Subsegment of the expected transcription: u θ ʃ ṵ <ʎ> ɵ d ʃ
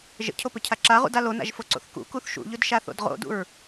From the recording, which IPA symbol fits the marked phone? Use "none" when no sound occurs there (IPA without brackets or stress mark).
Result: ʎ